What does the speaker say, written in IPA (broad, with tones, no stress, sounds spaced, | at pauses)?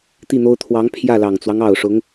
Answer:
t̪ i˥˩ n̪ o˥ ʊ̯ t̪ʰ w ɑ˧˥ ŋ pʰ j ä˥˩ l ɑ˨˩ ŋ t͡s w ɑ˦ ŋ ɑ˨˩ ʊ̯ ʂ ʊ˧˥ ŋ